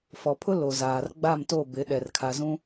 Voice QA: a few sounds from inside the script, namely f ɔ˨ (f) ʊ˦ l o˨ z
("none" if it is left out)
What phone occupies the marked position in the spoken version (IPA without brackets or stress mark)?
pʰ